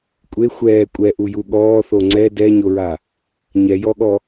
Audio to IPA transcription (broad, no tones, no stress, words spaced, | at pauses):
kʷʼe xʷɛː kʷʼɛʔuju ɠɔːθo ŋ͡ǀɛ dɛɲoɹa | ɲɛjɔɠɔ